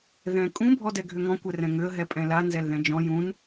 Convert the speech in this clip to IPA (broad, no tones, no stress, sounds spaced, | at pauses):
ð ɛ̃ kʼ ũ bʱ ɔ d ɛ ɡʱ ʏ ŋ ɔ̃ kʷ ɛ r ɛ̃ ŋ ʏ ə̯ ɦ ɛ pʼ ɛ̃ l a n z ɛ l ð ɛ̃ d͡ʒ ɔ̃ j ũ n